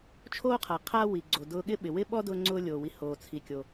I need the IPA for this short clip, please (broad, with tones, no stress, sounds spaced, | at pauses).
t͡ʃʰ oː˥ qʰ a˩ qʰ aː˥ w i˩ ɡ͡ǀ o˩ d ʊː˧ ɠ ɪ˥ ɓ ɪ˩ w ɪ˥ ɓ ɔ˥ d ʊː˥ ŋ͡ǀ ʊː˥ lʲ oː˩ w i˧ h oː˩ t͡sʰ i˩ kʲ o˩